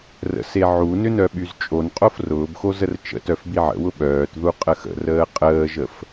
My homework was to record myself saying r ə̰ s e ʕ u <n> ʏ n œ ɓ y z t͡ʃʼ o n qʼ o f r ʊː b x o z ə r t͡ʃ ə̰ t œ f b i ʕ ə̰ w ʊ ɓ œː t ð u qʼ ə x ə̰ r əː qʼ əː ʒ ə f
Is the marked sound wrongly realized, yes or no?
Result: no